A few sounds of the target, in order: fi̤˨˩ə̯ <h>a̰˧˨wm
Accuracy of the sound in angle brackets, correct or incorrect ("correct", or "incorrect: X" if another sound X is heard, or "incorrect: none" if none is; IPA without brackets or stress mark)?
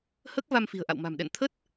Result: incorrect: ʔ